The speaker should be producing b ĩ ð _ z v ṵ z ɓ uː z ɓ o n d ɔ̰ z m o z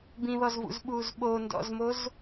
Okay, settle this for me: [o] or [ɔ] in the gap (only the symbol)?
ɔ